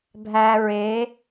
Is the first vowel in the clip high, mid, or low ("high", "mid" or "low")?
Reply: low